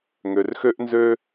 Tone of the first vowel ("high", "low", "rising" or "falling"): low